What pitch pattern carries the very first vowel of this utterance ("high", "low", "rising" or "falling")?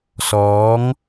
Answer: rising